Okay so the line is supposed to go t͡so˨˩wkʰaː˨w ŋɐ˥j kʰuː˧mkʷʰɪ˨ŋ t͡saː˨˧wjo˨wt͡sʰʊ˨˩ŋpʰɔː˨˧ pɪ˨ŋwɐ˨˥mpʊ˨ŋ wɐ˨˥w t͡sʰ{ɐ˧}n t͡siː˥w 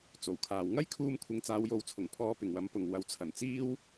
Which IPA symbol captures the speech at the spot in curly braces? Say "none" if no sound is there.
ɐ˨˩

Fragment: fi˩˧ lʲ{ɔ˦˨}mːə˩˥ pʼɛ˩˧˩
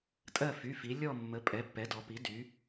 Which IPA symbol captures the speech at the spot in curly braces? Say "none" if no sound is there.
ɔ˦˨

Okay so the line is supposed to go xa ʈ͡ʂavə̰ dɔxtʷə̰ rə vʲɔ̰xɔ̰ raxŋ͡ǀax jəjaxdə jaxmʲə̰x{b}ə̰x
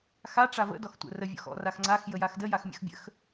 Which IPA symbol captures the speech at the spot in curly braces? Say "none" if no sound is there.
bʲ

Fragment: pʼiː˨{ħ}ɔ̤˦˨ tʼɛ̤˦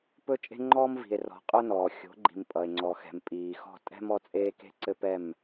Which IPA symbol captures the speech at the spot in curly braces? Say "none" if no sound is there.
x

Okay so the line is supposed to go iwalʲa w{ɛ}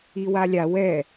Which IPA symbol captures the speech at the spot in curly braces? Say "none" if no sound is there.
ɛ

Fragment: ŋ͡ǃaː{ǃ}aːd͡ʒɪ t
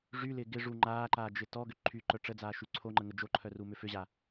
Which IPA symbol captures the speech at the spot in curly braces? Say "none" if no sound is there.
ǃ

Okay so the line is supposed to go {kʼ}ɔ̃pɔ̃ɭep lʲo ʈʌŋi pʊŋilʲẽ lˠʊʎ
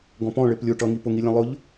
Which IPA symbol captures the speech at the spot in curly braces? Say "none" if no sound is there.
ɡ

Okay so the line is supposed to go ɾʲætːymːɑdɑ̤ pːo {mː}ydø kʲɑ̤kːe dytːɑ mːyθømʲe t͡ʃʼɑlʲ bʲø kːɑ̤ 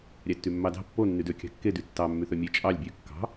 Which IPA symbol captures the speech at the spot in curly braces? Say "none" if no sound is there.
nː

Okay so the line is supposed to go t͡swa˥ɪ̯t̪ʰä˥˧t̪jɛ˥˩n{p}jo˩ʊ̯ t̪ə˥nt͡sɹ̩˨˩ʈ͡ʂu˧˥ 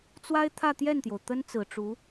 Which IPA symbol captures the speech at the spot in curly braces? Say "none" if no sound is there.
t̪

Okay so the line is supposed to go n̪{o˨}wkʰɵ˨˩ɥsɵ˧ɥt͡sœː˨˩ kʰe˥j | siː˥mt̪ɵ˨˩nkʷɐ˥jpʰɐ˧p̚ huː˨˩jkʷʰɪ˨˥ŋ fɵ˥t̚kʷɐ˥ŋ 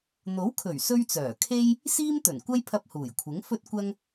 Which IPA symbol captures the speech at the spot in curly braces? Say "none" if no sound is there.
o˨˥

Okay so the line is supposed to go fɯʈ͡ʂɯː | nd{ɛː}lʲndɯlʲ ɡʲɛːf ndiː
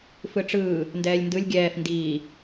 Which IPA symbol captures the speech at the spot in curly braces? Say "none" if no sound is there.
ɛː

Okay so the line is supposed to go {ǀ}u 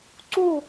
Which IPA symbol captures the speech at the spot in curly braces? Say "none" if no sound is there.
ǀ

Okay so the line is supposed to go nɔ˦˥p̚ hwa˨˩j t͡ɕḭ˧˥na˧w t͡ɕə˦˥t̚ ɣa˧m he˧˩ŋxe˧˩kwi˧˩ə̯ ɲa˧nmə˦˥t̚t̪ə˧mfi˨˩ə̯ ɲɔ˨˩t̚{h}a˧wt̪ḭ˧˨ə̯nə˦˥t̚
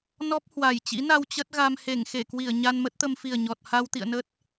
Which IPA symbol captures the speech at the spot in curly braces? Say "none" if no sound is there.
h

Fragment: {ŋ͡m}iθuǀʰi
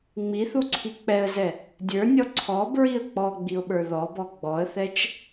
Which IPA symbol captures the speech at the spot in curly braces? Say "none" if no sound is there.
ŋ͡m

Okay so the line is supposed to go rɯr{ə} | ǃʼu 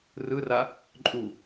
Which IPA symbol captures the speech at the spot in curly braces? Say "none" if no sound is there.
a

